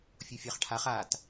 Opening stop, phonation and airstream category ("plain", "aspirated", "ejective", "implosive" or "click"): aspirated